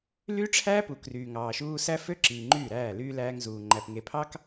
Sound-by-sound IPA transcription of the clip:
l yː˦ ʈ͡ʂʰ æː˦ p u˨ k r yː˨ ŋ ɑː˨ ʃ uː˦ s æ˦ f ø˦ ǁ iː˨ ŋ͡ǃ yː˦˨ ɾ æː˦˨ l yː˦ l æː˦ ŋ z uː˨ ŋ͡ǃ æ˨ p ŋ e˨ pʰ ɑ˦ k

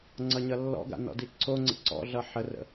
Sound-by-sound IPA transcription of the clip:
ŋ͡ǀ ʌ ɲ ʌ lː ɔ̰ ɡ a̰ n ɔ̰ d i ǀʰ o ŋ͡ǀ ə̰ ǀ ɔ̰ ɮ ʌ ħ ə r ə̰

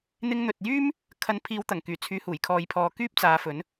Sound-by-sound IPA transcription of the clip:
n̪ ɪ˧ ŋ n̪ ɵ˨ t̚ j yː˥ m | kʰ ɐ˨˧ n pʰ iː˨˧ w t̪ ɐ˨˩ ŋ k yː˨˩ t͡sʰ yː˨˧ h uː˨˩ j kʰ ɔː˨ j pʰ ɔː˨ k yː˥ p̚ t͡s aː˨˧ f ɵ˨˥ n

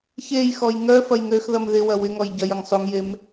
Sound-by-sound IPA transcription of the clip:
ç e j x ɔ j ŋ œ f ɐ j ŋ ø x ð ɐ m ð ɪ w ɐ w ɪ ŋ ɔ j ɟ ɐ j ɐ ŋ sˤ u ŋ j e m

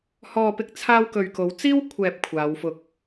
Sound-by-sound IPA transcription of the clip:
h ɔː˨ p ɪ˧ k̚ t͡sʰ aː˧ w k ɵ˨ ɥ k o˨˥ w t͡s iː˥ w kʷʰ ɛː˨ p̚ kʷʰ aː˨˧ w f ʊ˧ k̚

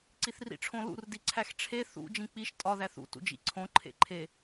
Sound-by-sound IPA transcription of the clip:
ǀ i θ r ḭ ʈ͡ʂʰ õ l ṵ r d i ǀʰ æ x ʈ͡ʂʰ e θ ṵ d͡ʒ ĩ k͡p i ʃ tʼ ɒ ð æ θ ṵ t ṵ d͡ʒ ḭ ǀʰ õ ǃʰ ḛ ǃʰ e

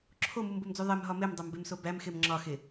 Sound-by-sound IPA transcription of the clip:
ǁʰ o m u m b o m d͡z u ðˤ e m ɦ ɒ m e m dˤ o m b e m s o b æ m x e m ŋ͡ǁ ɒ x e

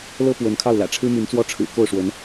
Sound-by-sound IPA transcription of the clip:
l ɤ˥ p w ə˧˥ n kʰ ɑ˥˩ ʊ̯ l ä̰˨˩ ʈ͡ʂʰ ɻ̩˥ m y˧˥ n t͡s w ɔ˥˩ ʈ͡ʂʰ ɻ̩˨˩ k o˥˩ ʊ̯ ʂ w ə˧˥ n

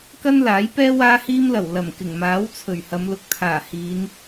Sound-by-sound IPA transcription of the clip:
k ɐ˥ n l aː˨˥ j p ɛː˥ w aː˥ h iː˥ m l ɐ˨˩ w l ɐ˨˩ m k ɪ˨˩ ŋ m aː˨˥ w t͡sʰ ɵ˨˩ ɥ h ɐ˨˧ m l ʊ˨˥ k̚ t̪ʰ aː˨˩ h iː˨˧ n

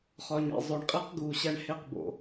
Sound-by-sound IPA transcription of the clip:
χ ɒ˨ ɲ ḛ˨ zˤ o˨ ɳ qʼ e˦ q ɡ u˨ ɕ æ˦ ɳ h e˦˨ q b o̰˨

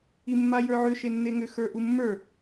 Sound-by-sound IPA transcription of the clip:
i mː a j ə˞ ʕ ʏ ʃ e nː e ŋ ʏ x ə˞ ʔ u mː ə˞

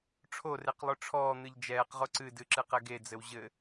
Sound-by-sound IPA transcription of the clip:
ʈ͡ʂʰ o r e q lˠ o ʈ͡ʂʰ ɔː n̪ ɨ ʎ d͡ʒ ɛː q ʁ o ǀ ɨ d ɨ ǁ ɨ q ɛ ɡ e d͡z ɘ w ʑ ɘ

